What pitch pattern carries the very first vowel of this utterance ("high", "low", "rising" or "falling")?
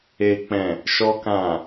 low